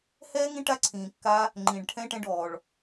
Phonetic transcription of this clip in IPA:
hɛː˦ŋĩ˦ʈa˦ ǀʰĩː˧kːa˦ | ŋ͡ǃĩː˧ɖʈʰɛ̃˦ʈɛ̃˦ɖɔː˧ɭ

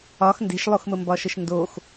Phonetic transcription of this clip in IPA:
ɒx nde̤ʃlˠoxməmbɒ ʃəʃndox

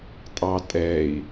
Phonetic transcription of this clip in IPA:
tʼɑtʼɛi̯

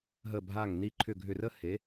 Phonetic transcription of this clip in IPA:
ɦə˧˩bʱa˧˩ŋ ni˧˩ǃʰʏ˧˩ ɡʱʏ˧˩rə˥ he˩˥

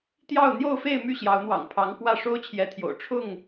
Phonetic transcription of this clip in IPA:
t̪jɑ˥˨ʊ̯ n̪jo˥˨ʊ̯fe˥˨ɪ̯my˥˨ ɕjɑ˨˦ʊ̯n̪wɑ̰˨˩ŋ pʰɑ˨˦ŋ kwä˥˨ ʂo˦ʊ̯t͡ɕʰjɛ˨˦t̪ʰjo̰˨˩ʊ̯ ʈ͡ʂʰʊ˥˨ŋ

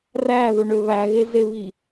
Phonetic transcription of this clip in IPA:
ræðoɳø βæɣezeβi

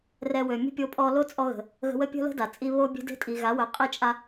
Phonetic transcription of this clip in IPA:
rɛ˧wø˨ mʲə̤˦pʲo˧ pʼɔ˧lo˦t͡sʼɔ˧ɣə̤˨ | ɣə̤˧wə˦pʲə̤˦ lə̤˦ da˨t͡sʼi˦ βo˧bʲe̤˧ de̤˦tʼi˨ɣa˨˦ wœ˨˦qʼi˦t͡ʃʼa˦

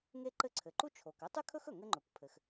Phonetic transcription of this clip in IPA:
ŋe˥ǃɘ˥ ǀʰɘ˩ǃu˥ t͡ʃʰo˩k ɘ˥tˤy˥kʰɵ˥x ɵ˩ŋɘ˥ŋ͡ǃɵ˩kʷ pʰɘ˩x

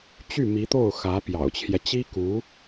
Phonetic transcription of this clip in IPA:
t͡ɕy˥˩mi˧˥t̪o˥˩ʊ̯ xä˧˥ pjɑ̰˨˩ʊ̯t͡ɕʰjɛ˦ t͡ɕi˥ku˧˥

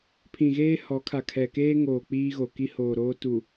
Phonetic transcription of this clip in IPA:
pʰĩ˨ɣeː˦ hɔ˨˦kʰa˨ kʰɛ˨ keː˦ŋoː˨ k͡piː˦ɣo˨ ki˦hoː˨ɾoː˦ tu˨

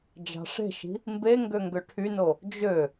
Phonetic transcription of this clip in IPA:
d͡ʒɑ̤ʂe̤ʃi̤ | mbe ŋɡøŋɡøʈʰyno | d͡ʒø

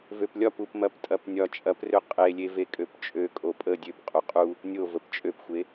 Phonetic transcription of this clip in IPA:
vøplʲɒp upmɐptʼɐpnʲɒ t͡ʃʼɐprø qʼelʲe vekʼøpt͡ʃʼø kʼopʼə dʲøp qʼuqʼu | nʲo vəpt͡ʃʼøpxʷe

